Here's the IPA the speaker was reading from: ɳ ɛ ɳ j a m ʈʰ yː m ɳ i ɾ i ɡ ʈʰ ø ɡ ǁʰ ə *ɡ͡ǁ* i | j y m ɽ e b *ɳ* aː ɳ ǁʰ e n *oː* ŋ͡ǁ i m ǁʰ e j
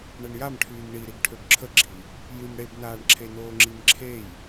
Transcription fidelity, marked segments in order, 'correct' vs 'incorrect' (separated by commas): correct, incorrect, correct